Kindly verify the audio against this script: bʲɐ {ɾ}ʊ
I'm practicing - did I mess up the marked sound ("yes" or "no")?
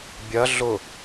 yes